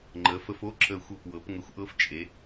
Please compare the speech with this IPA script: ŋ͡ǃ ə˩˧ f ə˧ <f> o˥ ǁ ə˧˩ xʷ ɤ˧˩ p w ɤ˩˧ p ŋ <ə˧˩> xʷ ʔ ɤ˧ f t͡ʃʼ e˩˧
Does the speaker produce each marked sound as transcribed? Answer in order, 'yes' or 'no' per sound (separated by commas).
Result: yes, no